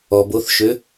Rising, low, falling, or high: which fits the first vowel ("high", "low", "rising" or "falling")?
low